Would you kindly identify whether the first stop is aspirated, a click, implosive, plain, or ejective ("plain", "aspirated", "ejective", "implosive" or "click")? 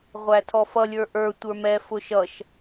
aspirated